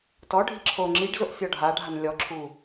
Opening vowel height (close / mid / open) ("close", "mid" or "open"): mid